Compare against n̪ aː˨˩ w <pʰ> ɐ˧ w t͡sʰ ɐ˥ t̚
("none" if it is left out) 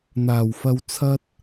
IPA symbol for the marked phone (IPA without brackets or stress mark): f